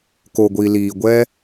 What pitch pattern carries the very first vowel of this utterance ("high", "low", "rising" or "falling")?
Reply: low